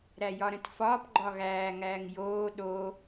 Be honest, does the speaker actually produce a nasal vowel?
yes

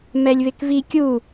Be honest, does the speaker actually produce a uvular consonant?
no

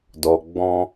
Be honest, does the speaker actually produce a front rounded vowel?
no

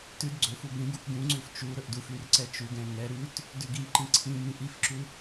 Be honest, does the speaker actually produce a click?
yes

